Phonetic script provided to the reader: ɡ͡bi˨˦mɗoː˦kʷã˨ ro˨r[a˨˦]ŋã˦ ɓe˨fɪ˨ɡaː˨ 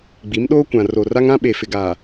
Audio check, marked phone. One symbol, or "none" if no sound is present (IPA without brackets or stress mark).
a˦